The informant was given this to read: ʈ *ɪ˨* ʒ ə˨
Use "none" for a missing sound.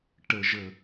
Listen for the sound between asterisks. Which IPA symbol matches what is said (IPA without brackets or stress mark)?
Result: ə˨